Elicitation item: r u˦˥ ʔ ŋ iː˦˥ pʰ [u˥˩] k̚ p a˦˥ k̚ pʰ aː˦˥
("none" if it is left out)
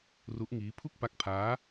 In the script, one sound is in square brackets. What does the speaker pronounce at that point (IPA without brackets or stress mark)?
u˥˩